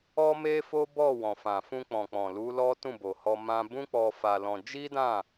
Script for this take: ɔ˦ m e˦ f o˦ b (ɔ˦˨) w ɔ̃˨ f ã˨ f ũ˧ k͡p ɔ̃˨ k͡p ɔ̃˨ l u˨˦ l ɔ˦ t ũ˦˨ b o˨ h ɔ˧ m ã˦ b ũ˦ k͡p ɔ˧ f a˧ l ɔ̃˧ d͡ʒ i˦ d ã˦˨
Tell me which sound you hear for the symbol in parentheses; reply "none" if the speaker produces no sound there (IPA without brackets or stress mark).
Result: ɔ˦˨